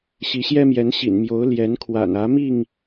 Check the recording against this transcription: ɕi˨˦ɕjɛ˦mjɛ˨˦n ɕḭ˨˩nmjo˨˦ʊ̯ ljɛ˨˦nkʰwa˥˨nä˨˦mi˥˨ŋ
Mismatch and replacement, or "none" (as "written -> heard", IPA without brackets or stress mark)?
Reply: a˥˨ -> a̰˨˩